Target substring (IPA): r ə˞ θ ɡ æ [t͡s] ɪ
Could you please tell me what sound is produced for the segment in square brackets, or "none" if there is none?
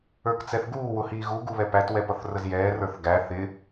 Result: θ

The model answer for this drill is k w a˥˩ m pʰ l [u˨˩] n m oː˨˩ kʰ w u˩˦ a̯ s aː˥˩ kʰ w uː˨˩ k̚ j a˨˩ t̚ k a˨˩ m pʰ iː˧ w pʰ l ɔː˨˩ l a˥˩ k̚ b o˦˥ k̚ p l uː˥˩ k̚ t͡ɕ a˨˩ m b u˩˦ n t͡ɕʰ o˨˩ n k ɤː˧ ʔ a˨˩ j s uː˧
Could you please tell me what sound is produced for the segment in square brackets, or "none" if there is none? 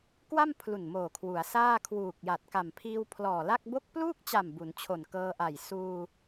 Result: u˨˩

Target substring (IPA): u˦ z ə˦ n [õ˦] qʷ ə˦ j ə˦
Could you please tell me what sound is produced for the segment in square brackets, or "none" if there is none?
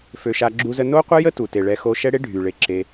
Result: o˦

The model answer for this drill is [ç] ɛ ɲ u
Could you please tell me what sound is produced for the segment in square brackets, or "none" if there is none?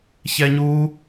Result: ç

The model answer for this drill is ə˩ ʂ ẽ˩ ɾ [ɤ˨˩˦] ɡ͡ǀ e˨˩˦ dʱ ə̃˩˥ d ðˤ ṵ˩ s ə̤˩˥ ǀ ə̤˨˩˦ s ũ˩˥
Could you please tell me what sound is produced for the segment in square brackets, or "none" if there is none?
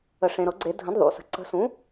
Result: ɤ˨˩˦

